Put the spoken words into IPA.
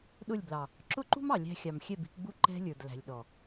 ɗ ʊ˦˨ lʲ b l ɑ˨ | ǁ ʊ˦ ǃ ṳ˦ m ɑ˨ lʲ æ̤˧ xʲ ɑ˨ m xʲ ɛ˦˨ b i̤˧ k ɡ͡b u˦ ǃ ɛ̤˧ lʲ ə˞˨ d l æ̤˨ lʲ ɗ ɔ˨

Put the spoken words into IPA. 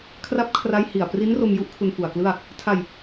kʰ r a˦˥ p̚ kʰ r a˦˥ j h i˨˩ a̯ p r i˦˥ n r o˧ m j u˦˥ ʔ kʰ u˧ n f u˨˩ a̯ k l ɯ˥˩ a̯ | tʰ a˧ j

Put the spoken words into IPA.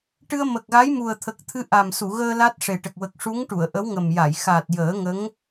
ʈ ɨ˧ ə̯ m ə˨˩ k̚ ɣ a˧˥ j m u˨˩ ə̯ t̪ʰ ə˨˩ k̚ t̪ʰ ɨ˧˥ ʔ a˨˩ m s u˨˩˨ ɣ əː˧ l a˦˥ t̚ ʂ e˨˩ ʈ ə˨˩ k̚ w ə˨˩ k̚ ʂ u˧˥ ŋ ʈ u˨˩˨ ə̯ ʔ ə˧˥ w ŋ ə˨˩ m j a˨˩˨ j x a˨˩ t̚ j əː˨˩˦ ŋ ə˧˥ ŋ

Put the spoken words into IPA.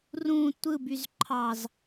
r ũ tʷ ɯ b y z ǃʰ ɑ z

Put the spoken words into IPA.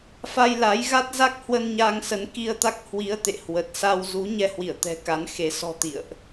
f a˧ j l a˨˦ j ɣ a˦˥ t̚ z a˦˥ k̚ h w ə˧ n ɲ a˧ ŋ s ə˨˦ n k i˧ ə̯ t̪ a˦˥ k̚ h w i˨˦ ə̯ t̪ ḛ˧˨ h w ə˨˩ t̚ s a˧ w z u˨˦ ɲ ɛ˧ h w i˧˩ ə̯ t̪ ɛ̤˨˩ k a˨˦ n x e˨˦ s ɔ̤˨˩ t̪ ḭ˧˨ ə̯ ʔ

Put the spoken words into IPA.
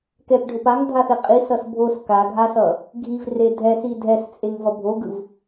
k ɛ p ɖʱ o p a ŋ dʱ a θ e qʼ i s ʌ s bʱ o s k a ɡʱ a s ʌ | ɡʱ i v r e dʱ ɛ s i dʱ ɛ s t͡sʼ e ŋ v ʌ bʱ o ɡ ɯ v

